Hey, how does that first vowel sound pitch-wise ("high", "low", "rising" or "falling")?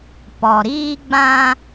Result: low